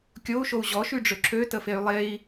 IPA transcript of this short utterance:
kʲ o u̯ ʃ o u̯ ʑ ɔ ʃ y ɖ͡ʐ ø ǁʰ ø t ə f e y̯ lˠ e i̯

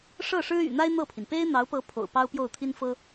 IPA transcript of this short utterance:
ʂ ɤ˥˩ ʂ ɻ̩˥ y̰˨˩ n̪ a˥ ɪ̯ n̪ ɤ˥˩ pʰ i˩ n p e˥ ɪ̯ n̪ ɑ˧˥ ʊ̯ p ɤ˧˥ pʰ o̰˨˩ ʊ̯ p ɑ˥ ʊ̯ p j o˥˩ ʊ̯ t̪ʰ i˥ n f ɤ˥

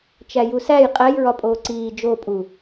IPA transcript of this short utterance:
t͡ʃ æ j u s æ j qʼ æ j ɹ ɒ pʼ oː ǀ iː d͡ʒ o pʼ u

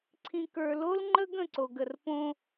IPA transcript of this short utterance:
ǀʰ ĩ˨ k ə˞˨ l o˦ l ŋ͡ǃ ə˦ ɡ ə̃˦˨ ǀ o˨ ɡ ə˨ r p õ˦

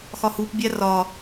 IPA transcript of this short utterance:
x ɒ h u p bʲ æ r ɒ

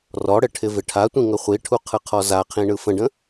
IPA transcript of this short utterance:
r ɔ ɽ ɘ ʈʰ ɪ v ɪ ʈʰ a tʷ ĩ ŋ ə χʷ i ʈʰ u qʰ ɯ qʰ ɔ z a qʰ ĩ ɳ ɯ f ə̃ ɖ ə̃

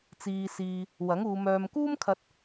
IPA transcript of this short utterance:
t͡s iː˧ s iː˧ | w ɐ˨˥ ŋ uː˨˧ m œː˧ m k uː˥ m kʰ ɐ˧ t̚

